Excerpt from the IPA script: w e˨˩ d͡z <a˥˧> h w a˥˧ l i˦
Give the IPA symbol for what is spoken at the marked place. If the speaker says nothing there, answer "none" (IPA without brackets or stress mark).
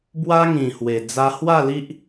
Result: a˧